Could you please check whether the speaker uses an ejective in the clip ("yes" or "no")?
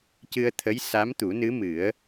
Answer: no